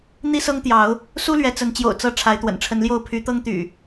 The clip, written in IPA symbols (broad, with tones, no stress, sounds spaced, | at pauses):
n̪ i˦ s ɤ˦ ŋ t̪ j ɑ˨˦ ʊ̯ | s u˦ l ɥ ɛ˨˦ t͡s ə˨˦ n t͡ɕ j o̰˨˩ ʊ̯ t͡s ɤ˨˦ ʈ͡ʂʰ a˨˦ ɪ̯ t̪ w ə̰˨˩ n ʈ͡ʂʰ ə˨˦ n l j o˥˨ ʊ̯ pʰ y˨˦ t̪ ɤ˦ ŋ t̪ y̰˨˩